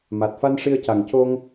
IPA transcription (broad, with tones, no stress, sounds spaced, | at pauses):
m a˨˩ t̚ f a˧ n ʂ i˧ ə̯ c a˨˩ ŋ c o˧ ŋ